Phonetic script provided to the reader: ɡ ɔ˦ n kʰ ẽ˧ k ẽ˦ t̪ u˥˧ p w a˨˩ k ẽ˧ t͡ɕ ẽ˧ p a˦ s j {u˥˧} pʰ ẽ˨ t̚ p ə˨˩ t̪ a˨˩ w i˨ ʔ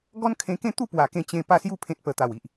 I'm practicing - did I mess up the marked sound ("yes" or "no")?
no